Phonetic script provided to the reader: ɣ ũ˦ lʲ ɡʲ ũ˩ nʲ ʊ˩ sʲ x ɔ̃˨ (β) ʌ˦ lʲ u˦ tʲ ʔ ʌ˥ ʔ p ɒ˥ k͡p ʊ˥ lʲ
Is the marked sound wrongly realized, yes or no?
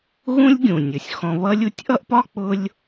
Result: no